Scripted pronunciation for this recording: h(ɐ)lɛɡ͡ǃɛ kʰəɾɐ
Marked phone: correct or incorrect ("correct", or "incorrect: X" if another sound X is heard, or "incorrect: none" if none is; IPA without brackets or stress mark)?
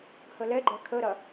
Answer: incorrect: ə